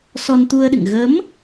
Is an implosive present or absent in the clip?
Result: present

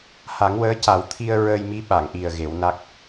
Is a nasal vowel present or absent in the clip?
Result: absent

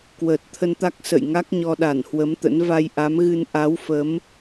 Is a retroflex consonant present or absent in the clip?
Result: absent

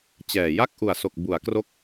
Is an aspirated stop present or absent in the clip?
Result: absent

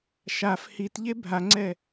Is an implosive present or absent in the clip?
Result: absent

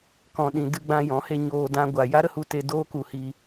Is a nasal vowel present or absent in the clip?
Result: present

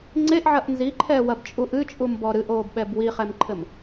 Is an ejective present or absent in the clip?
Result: present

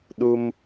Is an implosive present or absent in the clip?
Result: present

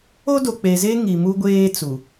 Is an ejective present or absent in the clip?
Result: absent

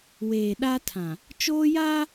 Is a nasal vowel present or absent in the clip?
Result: present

